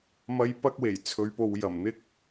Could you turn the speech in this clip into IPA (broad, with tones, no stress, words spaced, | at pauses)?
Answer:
mɐ˧jpɐ˧k̚we˨˩j t͡sʰɵ˨˧ɥpo˨wjɐ˨˩m n̪ɪ˧k̚